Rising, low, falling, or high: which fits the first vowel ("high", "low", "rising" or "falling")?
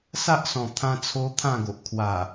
high